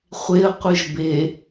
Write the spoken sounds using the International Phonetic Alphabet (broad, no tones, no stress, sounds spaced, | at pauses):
χʷ e ə̯ qʷ ɯ ʒ b e